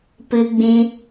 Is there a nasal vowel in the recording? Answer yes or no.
yes